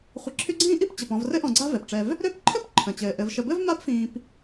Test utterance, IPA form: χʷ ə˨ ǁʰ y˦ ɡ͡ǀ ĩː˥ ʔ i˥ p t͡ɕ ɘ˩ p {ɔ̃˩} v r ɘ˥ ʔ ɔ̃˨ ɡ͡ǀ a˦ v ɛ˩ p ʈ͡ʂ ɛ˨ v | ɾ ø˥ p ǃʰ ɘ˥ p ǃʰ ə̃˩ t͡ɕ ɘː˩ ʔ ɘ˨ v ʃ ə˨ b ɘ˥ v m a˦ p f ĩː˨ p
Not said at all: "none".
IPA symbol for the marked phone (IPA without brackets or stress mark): ɔ̃˨